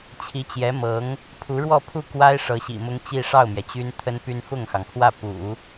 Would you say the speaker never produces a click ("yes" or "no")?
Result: yes